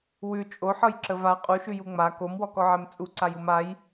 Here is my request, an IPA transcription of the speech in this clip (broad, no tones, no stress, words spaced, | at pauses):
wʉ t͡ʃʼoħɤjǁəv a qʼuʃʉju ŋ͡ma komwɔkɔʕɛm t͡sʼuǀajum aj